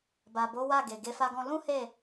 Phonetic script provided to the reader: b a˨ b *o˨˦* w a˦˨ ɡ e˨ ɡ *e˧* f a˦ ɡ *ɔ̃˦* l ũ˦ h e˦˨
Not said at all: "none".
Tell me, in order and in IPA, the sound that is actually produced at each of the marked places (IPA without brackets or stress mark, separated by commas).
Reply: o˨˦, e˧, ɔ̃˦